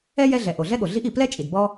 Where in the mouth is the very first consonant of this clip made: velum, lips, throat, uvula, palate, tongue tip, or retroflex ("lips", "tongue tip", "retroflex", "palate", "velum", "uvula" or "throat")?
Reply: palate